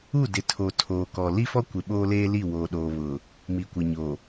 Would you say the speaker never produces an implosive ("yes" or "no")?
no